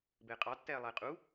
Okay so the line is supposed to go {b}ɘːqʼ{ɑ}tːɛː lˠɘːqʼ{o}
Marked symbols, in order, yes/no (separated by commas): yes, yes, no